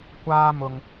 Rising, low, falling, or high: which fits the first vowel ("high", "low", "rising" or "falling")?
high